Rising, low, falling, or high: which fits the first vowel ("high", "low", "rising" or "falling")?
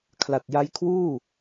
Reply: low